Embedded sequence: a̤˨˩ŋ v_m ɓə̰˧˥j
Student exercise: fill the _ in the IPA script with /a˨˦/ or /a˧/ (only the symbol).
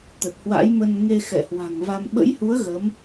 a˧